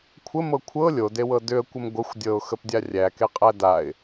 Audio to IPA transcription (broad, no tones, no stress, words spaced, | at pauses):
kʷʰəmɤ kʷʰɤ lʲodewɤ dʏə̯kʷəm ɡʷəxʷ dʲɤʊ̯xəpdʲa rʲækeqʼæ daɪ̯